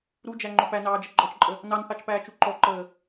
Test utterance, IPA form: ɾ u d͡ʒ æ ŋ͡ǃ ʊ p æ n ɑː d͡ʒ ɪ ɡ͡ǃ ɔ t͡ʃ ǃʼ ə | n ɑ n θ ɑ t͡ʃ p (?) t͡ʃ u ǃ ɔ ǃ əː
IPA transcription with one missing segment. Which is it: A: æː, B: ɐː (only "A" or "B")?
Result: A